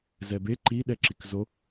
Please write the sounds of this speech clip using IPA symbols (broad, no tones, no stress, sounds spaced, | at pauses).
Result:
z ɛ b e ǃ i ɗ ɛ ǁ i k z o